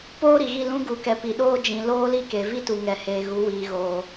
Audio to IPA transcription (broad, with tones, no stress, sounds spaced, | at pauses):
p oː˦ ɾ i˨ ɣ i˦˨ l ũ˦ ɡ u˨˦ k ɛ˨ p i˨ ɗ oː˦ d͡ʒ ĩ˨ l oː˦ l i˦ k e˨ v i˦ t u˨ ŋ ɛ˨ h eː˨ ɣ u˨˦ w iː˨ ɣ oː˨